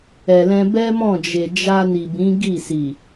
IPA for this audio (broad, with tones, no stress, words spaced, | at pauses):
ɛ˨lɛ̃˧ bɛ˦mɔ̃˦˨d͡ʒe˨ d͡ʒa˧ni˨bĩ˨˦ ɡi˦˨si˨